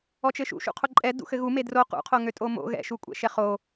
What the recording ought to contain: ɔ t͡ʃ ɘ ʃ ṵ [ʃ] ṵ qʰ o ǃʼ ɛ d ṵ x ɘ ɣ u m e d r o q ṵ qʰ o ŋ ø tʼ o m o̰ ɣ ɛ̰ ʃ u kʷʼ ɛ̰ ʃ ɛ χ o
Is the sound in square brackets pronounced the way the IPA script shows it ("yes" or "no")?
yes